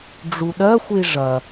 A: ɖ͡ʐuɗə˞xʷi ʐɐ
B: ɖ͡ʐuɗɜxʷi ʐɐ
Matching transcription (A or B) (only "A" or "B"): B